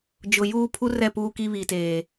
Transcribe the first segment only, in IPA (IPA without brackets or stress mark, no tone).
d͡ʒ